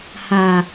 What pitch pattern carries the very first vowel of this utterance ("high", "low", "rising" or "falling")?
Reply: low